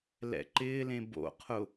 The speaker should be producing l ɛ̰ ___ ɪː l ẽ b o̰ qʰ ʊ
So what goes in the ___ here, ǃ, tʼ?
ǃ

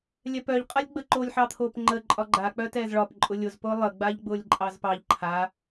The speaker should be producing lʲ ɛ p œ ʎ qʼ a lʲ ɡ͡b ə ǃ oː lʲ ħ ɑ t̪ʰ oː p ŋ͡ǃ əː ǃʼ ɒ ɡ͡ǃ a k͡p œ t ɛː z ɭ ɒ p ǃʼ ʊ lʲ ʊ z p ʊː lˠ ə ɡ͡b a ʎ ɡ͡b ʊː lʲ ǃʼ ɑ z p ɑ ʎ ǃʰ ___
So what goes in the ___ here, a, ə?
a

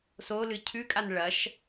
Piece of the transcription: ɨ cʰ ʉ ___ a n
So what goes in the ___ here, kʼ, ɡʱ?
kʼ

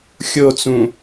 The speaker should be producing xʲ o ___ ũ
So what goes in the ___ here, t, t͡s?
t͡s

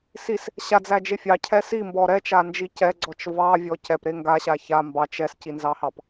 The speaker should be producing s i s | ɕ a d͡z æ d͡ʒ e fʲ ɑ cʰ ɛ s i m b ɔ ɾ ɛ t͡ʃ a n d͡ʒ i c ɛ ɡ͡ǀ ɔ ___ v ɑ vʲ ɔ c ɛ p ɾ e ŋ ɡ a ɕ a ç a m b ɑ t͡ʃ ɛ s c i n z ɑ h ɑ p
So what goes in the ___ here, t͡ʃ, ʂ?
t͡ʃ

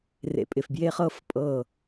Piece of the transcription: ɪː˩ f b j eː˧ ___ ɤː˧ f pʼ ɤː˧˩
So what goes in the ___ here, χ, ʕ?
χ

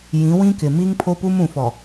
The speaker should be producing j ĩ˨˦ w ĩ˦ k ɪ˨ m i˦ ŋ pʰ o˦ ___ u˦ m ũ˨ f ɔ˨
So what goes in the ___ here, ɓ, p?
p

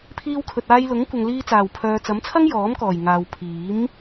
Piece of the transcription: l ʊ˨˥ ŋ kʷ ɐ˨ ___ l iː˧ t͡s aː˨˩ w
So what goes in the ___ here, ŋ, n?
ŋ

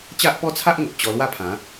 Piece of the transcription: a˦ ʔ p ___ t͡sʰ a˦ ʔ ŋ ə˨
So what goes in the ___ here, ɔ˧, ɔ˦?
ɔ˦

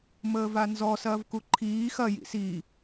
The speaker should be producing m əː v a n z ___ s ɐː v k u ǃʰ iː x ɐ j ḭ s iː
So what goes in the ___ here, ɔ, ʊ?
ɔ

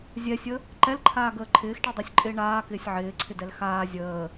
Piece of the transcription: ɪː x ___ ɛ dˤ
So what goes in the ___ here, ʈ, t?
ʈ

